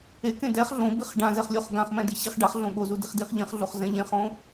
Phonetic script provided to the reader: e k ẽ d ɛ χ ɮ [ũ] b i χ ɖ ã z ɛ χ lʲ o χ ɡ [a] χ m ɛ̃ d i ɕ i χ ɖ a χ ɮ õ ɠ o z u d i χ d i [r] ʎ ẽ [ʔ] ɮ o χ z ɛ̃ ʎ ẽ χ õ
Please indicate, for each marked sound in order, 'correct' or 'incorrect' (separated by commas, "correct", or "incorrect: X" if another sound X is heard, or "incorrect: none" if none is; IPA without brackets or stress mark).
incorrect: õ, incorrect: ã, incorrect: χ, incorrect: χ